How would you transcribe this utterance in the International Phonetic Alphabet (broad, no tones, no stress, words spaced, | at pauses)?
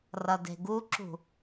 rʌde̤ɡuǁṳ